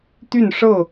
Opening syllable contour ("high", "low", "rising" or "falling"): falling